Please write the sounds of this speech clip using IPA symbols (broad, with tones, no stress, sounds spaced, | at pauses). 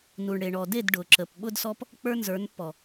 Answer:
n u˨ ɳ ɽ e˨ ɳ ɔ˨ d e˦˨ d ɖ ʊ˨ ǁ ə˨ p ɓ ʊ˦ d s ɔ˦ p | k͡p ə˞˦ n z ə˞˨˦ n pː ɔ˨